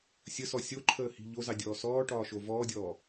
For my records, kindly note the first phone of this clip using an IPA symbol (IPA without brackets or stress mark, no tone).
sʲ